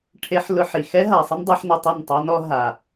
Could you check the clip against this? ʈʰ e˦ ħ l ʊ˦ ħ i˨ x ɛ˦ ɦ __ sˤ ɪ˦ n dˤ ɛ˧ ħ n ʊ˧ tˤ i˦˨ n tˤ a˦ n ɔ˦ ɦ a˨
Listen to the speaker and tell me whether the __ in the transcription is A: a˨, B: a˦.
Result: A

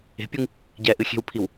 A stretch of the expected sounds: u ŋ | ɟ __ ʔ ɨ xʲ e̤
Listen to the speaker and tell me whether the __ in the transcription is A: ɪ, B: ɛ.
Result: B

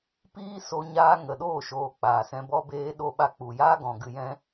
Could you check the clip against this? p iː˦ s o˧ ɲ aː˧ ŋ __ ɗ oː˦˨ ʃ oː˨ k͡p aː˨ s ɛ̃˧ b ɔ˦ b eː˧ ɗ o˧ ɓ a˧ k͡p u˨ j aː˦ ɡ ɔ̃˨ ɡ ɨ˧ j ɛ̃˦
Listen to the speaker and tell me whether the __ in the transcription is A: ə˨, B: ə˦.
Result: A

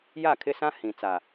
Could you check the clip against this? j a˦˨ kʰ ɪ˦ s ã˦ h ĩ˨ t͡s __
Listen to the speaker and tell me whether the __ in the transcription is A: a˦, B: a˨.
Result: B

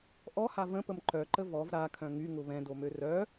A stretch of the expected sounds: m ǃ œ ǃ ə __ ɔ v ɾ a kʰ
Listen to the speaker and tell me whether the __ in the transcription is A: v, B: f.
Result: A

